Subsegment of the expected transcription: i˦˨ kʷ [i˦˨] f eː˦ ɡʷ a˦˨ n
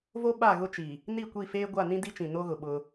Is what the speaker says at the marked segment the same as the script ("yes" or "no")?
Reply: yes